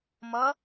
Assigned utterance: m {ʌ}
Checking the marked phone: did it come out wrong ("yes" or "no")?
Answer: no